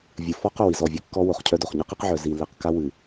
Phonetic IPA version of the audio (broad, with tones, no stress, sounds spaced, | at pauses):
vʲ ɨ˨ f ɔ˦ q œ˨ w i˨ z ɔ˦˨ vʲ ɨ˦ kː ɔ˦ w o˨ χ cʰ œ˦ d o˨ χ ɲ e˦ q i˦ q ʕ œ˨ z i˨ lː e˨ q k a˦ w ɨ˨